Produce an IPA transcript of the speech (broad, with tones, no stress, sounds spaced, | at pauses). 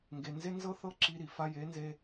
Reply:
ŋ ɡ e˧ n z e˦ n z ɤ˦ θ ɤ˦ ǁ i˧ ɾ i˨ f a˧ j e˨˦ n z e˧